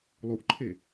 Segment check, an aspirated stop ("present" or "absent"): present